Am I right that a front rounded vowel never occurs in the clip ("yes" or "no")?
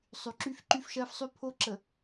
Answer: no